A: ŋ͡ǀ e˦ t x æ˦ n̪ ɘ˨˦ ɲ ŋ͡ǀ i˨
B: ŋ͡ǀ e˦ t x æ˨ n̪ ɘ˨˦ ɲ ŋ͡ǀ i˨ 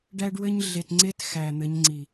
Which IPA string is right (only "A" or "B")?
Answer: B